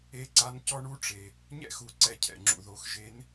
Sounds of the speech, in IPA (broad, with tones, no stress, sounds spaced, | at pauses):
e˧˥ ǀ a˧˥ n c ɔ˥ ɳ u˥ ʈ͡ʂ e˩ | ɲ ɛ̰˥ x u˩˧ ǀ ɛ˧ cʰ ɛ̰˩ ŋ͡ǁ ṵ˩ ð o˩˧ x ʒ e˧˥ n